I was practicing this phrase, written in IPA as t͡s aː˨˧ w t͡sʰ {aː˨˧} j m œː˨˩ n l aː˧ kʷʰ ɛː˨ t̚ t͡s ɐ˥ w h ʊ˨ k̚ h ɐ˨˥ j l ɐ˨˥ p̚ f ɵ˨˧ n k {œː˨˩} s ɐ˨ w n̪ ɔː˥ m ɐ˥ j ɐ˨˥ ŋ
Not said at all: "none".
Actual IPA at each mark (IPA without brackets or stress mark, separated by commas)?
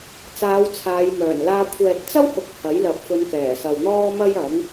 aː˨˧, ɛː˨˩